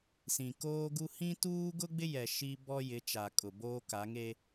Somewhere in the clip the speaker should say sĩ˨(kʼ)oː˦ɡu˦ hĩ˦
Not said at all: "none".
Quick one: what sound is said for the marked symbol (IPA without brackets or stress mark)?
k